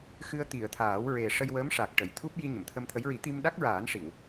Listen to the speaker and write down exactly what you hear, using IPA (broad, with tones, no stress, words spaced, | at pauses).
xɨ˧ə̯ t̪i˨˩˨ə̯t̪ʰaː˨˩˦w ɹe˨˩ ʂə˧jwəː˧˥mʂa˨˩k̚ ʈə˨˩˨jt̪ʰu˦˥p̚ ji˧ɲə˨˩˨mt̪ʰə˧mt̪ʰə˧˥j ɹi˨˩˦ t̪i˧mɗa˦˥k̚ɹaː˨˩˦n ʂi˨˩˨w